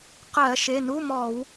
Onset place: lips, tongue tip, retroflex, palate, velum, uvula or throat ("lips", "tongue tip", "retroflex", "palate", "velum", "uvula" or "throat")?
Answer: uvula